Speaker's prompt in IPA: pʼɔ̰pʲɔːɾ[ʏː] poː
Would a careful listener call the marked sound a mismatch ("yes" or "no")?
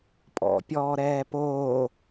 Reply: yes